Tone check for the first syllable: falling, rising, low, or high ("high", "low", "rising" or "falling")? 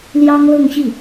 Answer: high